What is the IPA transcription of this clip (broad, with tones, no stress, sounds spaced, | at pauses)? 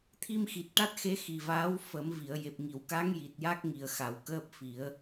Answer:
t̪ʰ i˧ m x i˨˩ t̚ ʈ a˦˥ t̚ x e˧˥ x i˨˩ v aː˧˥ w f ə˨˩˦ m v i˨˩˨ ə̯ j e˨˩ p̚ ŋ i˨˩˨ w k a˧˥ ŋ j i˨˩ t̚ j a˦˥ k̚ ŋ i˨˩ ə̯ x a˨˩˦ w k əː˦˥ p̚ f i˨˩˦ ə̯